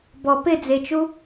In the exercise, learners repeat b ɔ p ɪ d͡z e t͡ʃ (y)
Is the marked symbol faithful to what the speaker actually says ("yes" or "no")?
no